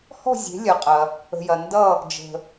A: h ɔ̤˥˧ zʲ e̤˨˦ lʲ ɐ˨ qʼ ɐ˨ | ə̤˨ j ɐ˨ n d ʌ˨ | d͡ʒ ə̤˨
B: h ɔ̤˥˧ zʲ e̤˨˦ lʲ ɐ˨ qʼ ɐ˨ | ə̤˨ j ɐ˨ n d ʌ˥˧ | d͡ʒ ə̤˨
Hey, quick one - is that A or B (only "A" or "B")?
B